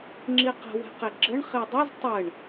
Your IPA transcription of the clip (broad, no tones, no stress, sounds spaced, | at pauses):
ŋ͡ǁ i q ə̤ w ɛ̤ q e ɡ͡ǁ ə ɳ χ i dˤ ə z tˤ ə ɳ